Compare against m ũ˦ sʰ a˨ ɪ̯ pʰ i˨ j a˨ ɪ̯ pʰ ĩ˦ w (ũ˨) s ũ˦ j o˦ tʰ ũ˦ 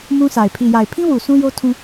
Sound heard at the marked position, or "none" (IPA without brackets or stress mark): u˨